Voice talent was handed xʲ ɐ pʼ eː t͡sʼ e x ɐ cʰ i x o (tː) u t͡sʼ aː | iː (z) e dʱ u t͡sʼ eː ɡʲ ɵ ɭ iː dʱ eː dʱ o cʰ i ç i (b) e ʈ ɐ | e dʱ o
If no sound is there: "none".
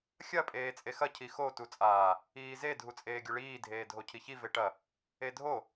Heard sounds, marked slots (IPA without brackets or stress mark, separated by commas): t, z, v